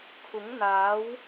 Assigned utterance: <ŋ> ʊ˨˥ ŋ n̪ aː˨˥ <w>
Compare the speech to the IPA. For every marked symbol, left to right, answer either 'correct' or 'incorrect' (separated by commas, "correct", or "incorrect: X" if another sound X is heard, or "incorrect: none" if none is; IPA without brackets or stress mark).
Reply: incorrect: kʰ, correct